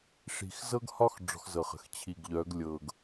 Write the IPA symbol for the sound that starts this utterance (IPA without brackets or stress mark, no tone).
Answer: ʂ